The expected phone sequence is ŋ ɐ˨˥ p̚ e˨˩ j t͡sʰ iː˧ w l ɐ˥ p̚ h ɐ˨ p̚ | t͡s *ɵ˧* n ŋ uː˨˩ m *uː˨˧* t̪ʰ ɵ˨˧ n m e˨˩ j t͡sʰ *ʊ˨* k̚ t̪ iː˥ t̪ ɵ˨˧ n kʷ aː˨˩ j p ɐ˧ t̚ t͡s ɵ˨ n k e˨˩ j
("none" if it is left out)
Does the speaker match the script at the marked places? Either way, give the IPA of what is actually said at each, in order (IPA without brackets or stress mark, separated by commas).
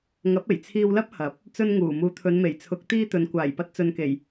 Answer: ɵ˧, uː˨˧, ʊ˨˥